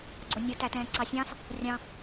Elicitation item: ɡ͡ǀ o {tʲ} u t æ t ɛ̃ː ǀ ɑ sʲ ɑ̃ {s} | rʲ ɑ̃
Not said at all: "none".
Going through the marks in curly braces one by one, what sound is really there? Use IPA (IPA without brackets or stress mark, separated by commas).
nʲ, s